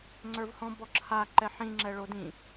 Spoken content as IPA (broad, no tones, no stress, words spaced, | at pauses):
ŋ͡ǀə˞vhɔ̃ bɔǁʰa ǃɛħĩ ŋ͡ǁɛɭodĩ